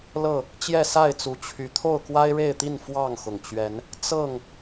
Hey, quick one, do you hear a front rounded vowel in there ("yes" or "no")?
yes